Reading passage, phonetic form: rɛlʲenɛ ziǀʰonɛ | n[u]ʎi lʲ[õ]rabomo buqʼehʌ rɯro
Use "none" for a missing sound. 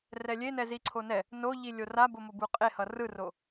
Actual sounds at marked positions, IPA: o, o

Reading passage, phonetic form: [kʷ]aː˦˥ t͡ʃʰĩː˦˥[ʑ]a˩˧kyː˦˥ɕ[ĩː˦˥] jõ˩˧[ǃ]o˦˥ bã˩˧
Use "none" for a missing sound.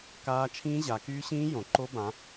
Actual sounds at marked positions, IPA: k, ʑ, ĩː˦˥, ǃ

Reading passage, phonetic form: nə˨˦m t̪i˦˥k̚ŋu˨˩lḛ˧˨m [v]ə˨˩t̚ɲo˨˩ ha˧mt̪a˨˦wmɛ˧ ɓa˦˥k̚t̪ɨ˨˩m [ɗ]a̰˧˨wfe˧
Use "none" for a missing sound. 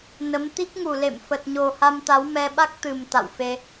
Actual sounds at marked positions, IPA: f, t̪

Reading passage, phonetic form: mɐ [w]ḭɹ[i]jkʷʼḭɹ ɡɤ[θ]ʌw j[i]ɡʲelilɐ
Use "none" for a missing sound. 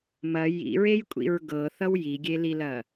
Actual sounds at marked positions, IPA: j, e, θ, i

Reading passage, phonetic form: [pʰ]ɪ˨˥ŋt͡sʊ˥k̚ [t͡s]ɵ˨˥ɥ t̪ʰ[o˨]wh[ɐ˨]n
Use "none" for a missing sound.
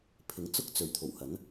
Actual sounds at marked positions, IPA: pʰ, t͡s, o˨˩, ɐ˨˥

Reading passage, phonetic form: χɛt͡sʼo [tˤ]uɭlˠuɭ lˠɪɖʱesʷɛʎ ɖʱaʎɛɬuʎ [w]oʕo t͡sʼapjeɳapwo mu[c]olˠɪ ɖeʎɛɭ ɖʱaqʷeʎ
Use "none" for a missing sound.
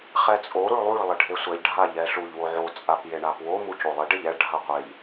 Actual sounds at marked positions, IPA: ɾ, w, c

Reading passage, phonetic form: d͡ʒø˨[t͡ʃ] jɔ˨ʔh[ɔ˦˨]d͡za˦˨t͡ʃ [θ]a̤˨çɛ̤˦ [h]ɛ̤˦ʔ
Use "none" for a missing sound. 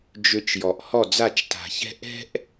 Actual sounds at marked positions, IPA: t͡ʃ, ɔ˦˨, t, ʔ

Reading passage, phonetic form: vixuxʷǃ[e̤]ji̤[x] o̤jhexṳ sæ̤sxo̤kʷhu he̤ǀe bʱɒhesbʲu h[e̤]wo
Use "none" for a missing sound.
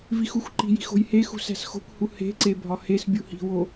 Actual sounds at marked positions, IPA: i̤, x, i̤

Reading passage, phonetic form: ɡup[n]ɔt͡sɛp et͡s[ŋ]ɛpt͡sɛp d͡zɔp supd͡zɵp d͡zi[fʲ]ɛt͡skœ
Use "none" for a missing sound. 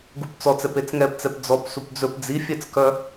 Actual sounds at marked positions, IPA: t͡s, ŋ, fʲ

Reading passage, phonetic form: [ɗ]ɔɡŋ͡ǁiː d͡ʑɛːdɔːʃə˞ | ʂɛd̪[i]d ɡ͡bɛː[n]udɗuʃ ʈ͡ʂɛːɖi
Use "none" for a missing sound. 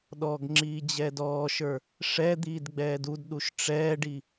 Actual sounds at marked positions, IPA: ɗ, iː, d

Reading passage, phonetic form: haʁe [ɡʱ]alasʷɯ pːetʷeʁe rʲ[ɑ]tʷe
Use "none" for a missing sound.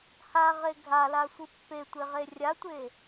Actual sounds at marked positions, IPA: ɡʱ, a

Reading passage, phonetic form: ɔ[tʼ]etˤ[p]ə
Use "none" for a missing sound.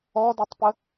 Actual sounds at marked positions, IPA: d, p

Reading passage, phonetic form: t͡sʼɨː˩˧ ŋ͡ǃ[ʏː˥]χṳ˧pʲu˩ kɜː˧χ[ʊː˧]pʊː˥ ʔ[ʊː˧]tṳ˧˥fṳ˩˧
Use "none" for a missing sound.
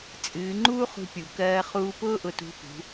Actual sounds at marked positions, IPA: uː˥, uː˧, ʊ˧

